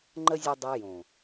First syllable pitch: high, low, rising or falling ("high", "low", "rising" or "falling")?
high